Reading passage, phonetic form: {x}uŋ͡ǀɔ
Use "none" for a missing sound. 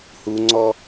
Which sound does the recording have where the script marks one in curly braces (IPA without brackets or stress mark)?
h